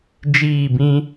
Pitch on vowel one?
falling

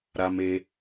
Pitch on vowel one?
high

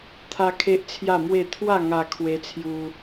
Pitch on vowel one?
high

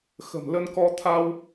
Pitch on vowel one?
low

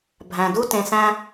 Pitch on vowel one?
low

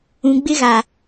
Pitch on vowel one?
low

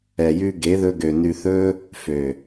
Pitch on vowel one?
low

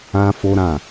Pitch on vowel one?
high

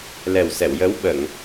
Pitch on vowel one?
low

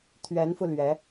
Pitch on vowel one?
rising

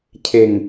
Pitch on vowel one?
low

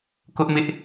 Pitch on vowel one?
high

